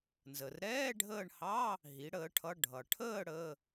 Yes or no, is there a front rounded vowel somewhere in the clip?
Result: no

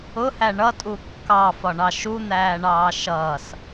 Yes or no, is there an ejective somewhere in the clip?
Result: yes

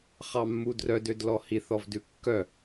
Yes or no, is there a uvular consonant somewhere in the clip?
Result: yes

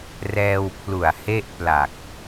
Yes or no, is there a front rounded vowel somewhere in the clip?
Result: no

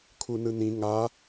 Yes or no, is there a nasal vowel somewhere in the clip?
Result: yes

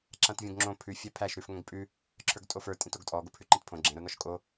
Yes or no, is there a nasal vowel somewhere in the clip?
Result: yes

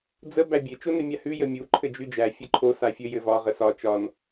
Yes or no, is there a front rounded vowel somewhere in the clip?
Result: no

